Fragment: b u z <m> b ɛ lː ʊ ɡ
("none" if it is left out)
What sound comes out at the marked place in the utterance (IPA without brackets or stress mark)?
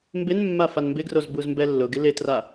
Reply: m